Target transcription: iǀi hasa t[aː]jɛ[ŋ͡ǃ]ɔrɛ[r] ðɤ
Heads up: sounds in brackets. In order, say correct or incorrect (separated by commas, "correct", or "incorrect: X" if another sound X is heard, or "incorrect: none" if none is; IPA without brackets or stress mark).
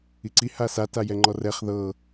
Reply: incorrect: a, correct, incorrect: χ